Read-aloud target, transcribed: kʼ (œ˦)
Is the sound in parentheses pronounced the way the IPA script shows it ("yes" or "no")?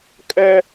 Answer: yes